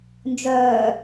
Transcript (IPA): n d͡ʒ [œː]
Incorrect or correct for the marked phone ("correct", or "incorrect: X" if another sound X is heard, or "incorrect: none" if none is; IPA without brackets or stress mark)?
correct